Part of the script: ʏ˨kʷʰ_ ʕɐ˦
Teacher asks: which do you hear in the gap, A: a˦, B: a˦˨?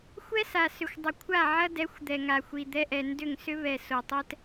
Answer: B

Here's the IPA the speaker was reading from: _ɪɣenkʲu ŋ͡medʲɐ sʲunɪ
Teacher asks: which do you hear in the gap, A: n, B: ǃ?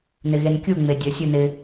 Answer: A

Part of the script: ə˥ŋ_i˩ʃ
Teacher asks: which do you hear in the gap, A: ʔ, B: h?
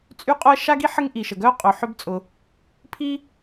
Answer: A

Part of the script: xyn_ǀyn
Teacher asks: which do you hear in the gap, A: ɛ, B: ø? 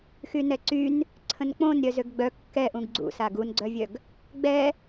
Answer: A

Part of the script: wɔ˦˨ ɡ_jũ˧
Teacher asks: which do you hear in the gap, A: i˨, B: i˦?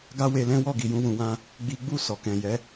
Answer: A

